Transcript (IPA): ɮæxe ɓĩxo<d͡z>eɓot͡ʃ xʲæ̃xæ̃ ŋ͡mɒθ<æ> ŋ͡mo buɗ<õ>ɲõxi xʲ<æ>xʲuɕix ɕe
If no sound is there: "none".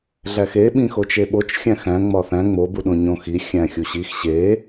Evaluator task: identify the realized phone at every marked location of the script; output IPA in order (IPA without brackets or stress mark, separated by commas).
t͡ʃ, æ̃, õ, æ̃